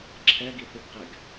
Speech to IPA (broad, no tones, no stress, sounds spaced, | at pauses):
ǁʰ ɛ ɡ i θ u ɡ q ɛ ɡ